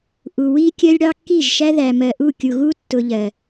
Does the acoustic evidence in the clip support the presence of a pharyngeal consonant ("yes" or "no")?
no